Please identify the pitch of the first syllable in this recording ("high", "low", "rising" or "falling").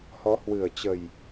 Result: rising